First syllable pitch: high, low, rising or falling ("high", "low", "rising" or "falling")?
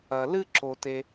low